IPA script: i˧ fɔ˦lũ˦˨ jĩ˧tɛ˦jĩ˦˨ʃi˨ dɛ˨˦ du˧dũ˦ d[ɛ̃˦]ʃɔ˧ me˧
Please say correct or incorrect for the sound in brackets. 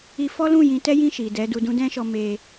correct